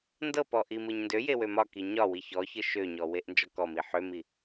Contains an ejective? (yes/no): no